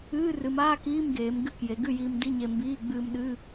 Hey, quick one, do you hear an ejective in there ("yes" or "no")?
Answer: no